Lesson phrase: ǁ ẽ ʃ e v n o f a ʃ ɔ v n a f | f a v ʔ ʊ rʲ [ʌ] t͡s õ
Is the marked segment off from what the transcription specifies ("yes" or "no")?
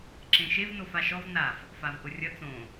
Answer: no